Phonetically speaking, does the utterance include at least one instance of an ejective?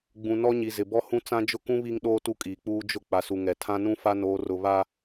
yes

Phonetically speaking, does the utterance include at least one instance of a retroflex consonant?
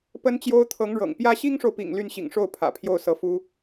yes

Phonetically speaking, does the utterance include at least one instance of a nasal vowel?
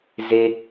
no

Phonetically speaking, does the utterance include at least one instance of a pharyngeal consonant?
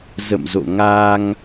no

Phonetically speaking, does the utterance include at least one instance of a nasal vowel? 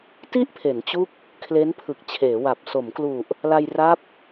no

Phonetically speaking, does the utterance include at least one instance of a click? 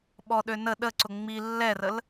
yes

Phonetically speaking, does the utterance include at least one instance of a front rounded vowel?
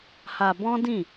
no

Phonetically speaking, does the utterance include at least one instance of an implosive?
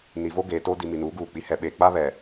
yes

